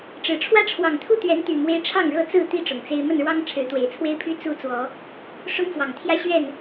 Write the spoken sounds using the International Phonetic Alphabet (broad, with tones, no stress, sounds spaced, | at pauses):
ʈ͡ʂ ɻ̩˨˩ ʈ͡ʂʰ w ä˦ ʈ͡ʂʰ w ɑ˨˩ ŋ t̪ʰ u˥˨ t̪ ɥ ɛ˨˦ n t̪ y˨˩ m w e˦ ɪ̯ ʈ͡ʂʰ ɑ˥˨ ŋ ɻ ɤ˥˨ t͡s ɹ̩˥˨ t̪ i˦ ʈ͡ʂ ʊ˨˩ ŋ t͡s e˦ ɪ̯ m ə˥˨ n ɻ w ɑ˦ ŋ ʈ͡ʂʰ ɻ̩˨˦ t̪ w e˨˩ ɪ̯ t͡sʰ w e˦ ɪ̯ pʰ y˦ t͡s u˦ t͡s w ɔ˨˦ | ʂ ʊ˦ ŋ f w ɑ˨˩ ŋ t̪ʰ j ä˦ ɕ ɥ ɛ˥˨ n